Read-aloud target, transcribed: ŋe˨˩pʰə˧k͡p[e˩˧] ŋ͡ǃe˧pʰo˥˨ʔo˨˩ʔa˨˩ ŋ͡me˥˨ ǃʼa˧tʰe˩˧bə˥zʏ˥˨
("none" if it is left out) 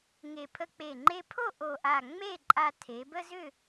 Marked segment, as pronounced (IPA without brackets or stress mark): e˨˩